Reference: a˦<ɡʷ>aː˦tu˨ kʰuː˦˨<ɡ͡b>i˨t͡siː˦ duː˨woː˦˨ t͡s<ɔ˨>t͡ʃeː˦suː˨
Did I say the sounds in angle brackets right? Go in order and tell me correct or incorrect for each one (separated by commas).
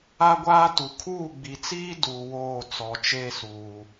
correct, correct, correct